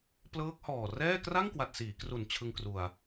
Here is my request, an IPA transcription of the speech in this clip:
plɤː˦˥k̚hɔː˨˩ rɛː˥˩ kra˥˩ŋkwa˨˩t̚ siː˩˦kru˨˩n t͡ɕʰɯ˧ŋkru˨˩a̯

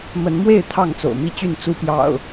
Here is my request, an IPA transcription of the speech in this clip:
mə˨˦nmwe˥˨ɪ̯ t̪ʰɑ˥˨ŋt͡so̰˨˩ʊ̯mi˥˨t͡ɕy˥˨n t͡su˦pjɑ̰˨˩ʊ̯

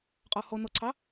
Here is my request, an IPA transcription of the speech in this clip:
qʼɔhɔ nɔǀʰɑ

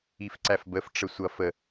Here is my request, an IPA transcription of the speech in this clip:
ifǀæfbəf ʈ͡ʂəsʷʌ fə

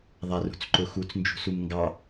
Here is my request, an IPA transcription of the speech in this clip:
ðˤarṳt͡sǃʊxut͡s nd͡ʒṳsumŋɡɑ

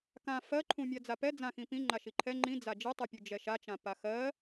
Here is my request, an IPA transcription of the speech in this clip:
kã fɜǃʰũmʲa d͡zapɛ d͡zãxĩ pĩ ŋ͡ǃaʃiǃʰɛ ŋ͡ǃĩ d͡zad͡ʒitˤupʲu d͡ʒɛʃat͡ʃã paxɜ

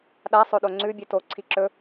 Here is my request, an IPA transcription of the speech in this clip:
ɗasˤoɗo ŋ͡ǀʉ bʲʉto ǀʰiǁɵ

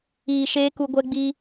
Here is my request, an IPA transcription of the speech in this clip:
iː˨ʃeː˧ ku˧ɡʷɛ˦ɡ͡bi˦

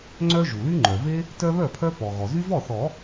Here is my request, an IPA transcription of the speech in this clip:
ŋ͡ǀœ˦ ʒu˩ly˦ŋ͡ǃœ˩ ve˦ | tœ˦βœ˥˩pʰœ˦ pɔ˩ɣɔ˩ zy˦vɔ˥˩θɔ˨˩˦

